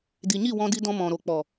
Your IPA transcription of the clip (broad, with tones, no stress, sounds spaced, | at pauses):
d i˨ ɲ i˦˨ w ɔ̃˧ d i˧ d ɔ̃˧ m ɔ̃˨ ɾ o˨ k͡p ɔ˨